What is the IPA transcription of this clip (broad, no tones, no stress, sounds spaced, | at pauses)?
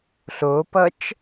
ɬ o p ʌ t͡ʃ